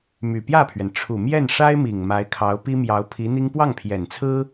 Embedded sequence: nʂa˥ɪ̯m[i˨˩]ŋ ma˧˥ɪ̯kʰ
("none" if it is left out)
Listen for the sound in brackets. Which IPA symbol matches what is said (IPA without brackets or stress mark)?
i˨˩